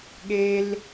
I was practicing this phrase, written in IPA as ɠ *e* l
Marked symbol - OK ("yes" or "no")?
yes